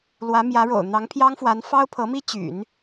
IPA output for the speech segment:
l w ä˧˥ m j ä˧˥ ɻ o̰˨˩ ʊ̯ n̪ ɑ˧˥ ŋ pʰ j ɑ˥ ŋ f w a˧˥ n f ɑ˥ ʊ̯ pʰ ɤ˧˥ m i˥ t͡ɕ y̰˨˩˦ n

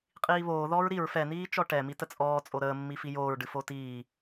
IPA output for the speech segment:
qʼ iː β oː ð ɔː ɹ ɾ i ɹ f ɛ n̪ iː t͡ʃ ɔ ʈ ɛ m i t ə t͡sʼ ɔː t͡sʼ o ɾ əː mː i f i j oː ɹ ɖ ɨ f o t iː

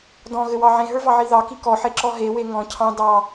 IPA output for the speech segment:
d ɔ̃ ɣ ɘ w ɑ ʕ ẽ ɦ ə˞ v ɑ ʕ i ð ɑ k i k ɔ ħ e ǁ ɔ ɦ e w e ŋ ɔ̃ cʰ ɑ̃ d ɑ

